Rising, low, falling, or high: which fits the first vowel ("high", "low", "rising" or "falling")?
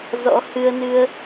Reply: rising